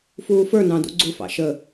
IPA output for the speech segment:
f uː f ə˞ n ɑ̃ d ṵ ɡ͡ǀ u f ɑ̰ ʃ ə

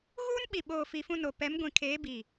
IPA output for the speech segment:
ɣ uː˦ n ɓ i˨ ɓ oː˨ f i˨ f ũ˦˨ n o˨ p ɛ˨˦ m ɡʷ ĩ˨ kʰ eː˨˦ b i˨

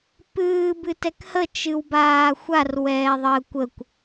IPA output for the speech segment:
p ɨː b ɨ t ɛ k h ə t͡ʃ ɨ w b aː xʷ a r w ɛː ðˤ əː kʷ ə kʷ

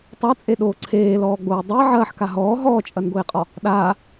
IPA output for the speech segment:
tˤ ɐ t͡sʼ e ɗ oː ǀʰ eː l ɔː ɡ͡b oː dˤ e ʕ ɐː ħ k a ɦ ɔː ɦ ɔː t͡ʃʼ ɐ n ɡʷ eː qʼ ɔ | ɗ aː

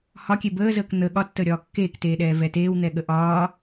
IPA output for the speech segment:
h ɒ kʲ e b əː z əː k n̪ ə ɠ ɒ tː əː ɾʲ ɒː kː eː k t eː ɗ ɛː v ɛ t eː w n̪ ɛ ɠ ə ʔ ɒː

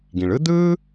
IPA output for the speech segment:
ɡ ĩ˩ ɭ ɯ˥ d̪ ɯː˥

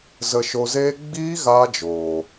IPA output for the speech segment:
z ə˧ ʃ o˧ z eː˦ ɡ͡b iː˦ ɣ aː˦ d͡ʒ oː˨

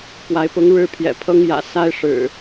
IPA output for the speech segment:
p w a˨˦ ɪ̯ p ʊ˨˦ ŋ ɻ ɻ̩˦ pʰ j ɛ̰˨˩ pʰ ɤ˦ ŋ j ä̰˨˩ s a˦ ɪ̯ ʂ ɻ̩˨˩

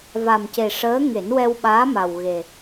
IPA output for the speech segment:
v a˨˩ m c e˨˩ ʂ əː˧˥ ŋ e˨˩˦ n w ɛ˧ w ɓ aː˧˥ m a˨˩ w ɣ e˨˩

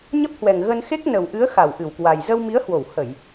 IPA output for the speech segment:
ɲ ə˦˥ p̚ h w ɛ˨˩ ŋ ɣ ə˧ n x e˦˥ k̚ n ə˨˩ w ʔ ɨ˨˦ ə̯ x a˧˩ w ʔ ɨ˧˩ w k w a˨˩ j z ə˧ w m i˨˦ ə̯ h w o˧˩ w h ə˧˩˨ j

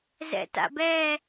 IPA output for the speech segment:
z ɛ̰ t a̰ b ɛ

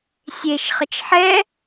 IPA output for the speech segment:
sʲ e ʃ χ ə t͡ʃ ħ ɛ

